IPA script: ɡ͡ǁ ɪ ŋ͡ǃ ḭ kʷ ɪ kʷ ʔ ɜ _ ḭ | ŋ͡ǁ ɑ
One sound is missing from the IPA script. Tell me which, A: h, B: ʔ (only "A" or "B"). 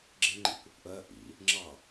B